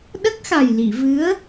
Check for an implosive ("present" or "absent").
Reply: present